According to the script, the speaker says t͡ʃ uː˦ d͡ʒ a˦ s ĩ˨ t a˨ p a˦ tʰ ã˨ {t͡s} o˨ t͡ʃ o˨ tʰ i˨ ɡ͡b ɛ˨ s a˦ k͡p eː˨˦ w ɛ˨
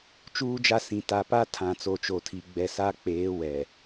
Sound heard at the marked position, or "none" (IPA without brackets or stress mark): t͡s